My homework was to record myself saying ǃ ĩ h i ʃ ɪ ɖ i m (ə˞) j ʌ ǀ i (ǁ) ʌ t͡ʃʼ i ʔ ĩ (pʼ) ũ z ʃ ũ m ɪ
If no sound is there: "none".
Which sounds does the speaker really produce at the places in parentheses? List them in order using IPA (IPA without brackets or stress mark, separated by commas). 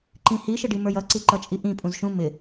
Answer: ə˞, ǃ, pʼ